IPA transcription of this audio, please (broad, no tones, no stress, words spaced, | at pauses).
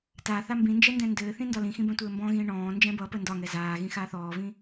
ta θambĩnd͡ʒɛ ndɛ̃ndɘːθĩ ndɒlĩxĩ bɛ̃tʷɘːmbɔ̃ɣĩː ɳɔ̃ː nd͡ʒɛ̃bʌpə ndɒŋɛ zaː ɣĩxaːθɔːvĩ